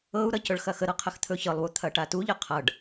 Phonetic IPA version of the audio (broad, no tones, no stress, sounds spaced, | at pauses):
ɤ u̯ ɾ ʌ c ɵ ɭ x ɐ x ə ɾ ɤ qʰ ə x t̪ʰ ɵ ç ɤ lˠ w u t̪ʰ ɐ ʈ a t u ʎ ʌ qʰ ʌ ɖ